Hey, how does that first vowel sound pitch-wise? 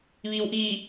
low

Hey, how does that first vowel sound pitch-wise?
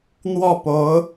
falling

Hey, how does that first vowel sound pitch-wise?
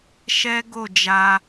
high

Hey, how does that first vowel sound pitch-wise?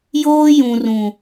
high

